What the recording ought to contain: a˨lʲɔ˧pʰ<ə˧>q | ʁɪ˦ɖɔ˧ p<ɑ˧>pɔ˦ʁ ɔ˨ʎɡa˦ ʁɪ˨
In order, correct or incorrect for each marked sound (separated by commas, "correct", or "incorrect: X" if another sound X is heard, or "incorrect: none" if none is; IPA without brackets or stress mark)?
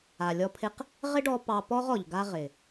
incorrect: ɪ˧, correct